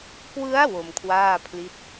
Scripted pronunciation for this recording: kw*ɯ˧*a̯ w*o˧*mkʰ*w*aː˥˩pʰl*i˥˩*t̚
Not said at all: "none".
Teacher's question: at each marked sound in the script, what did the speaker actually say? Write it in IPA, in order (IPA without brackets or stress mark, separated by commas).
ɯ˦˥, o˧, w, i˦˥